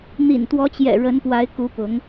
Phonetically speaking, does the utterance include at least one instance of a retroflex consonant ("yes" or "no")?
yes